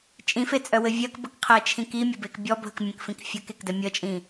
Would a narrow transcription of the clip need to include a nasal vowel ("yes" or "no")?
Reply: yes